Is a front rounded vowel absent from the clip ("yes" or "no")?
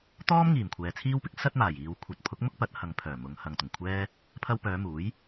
no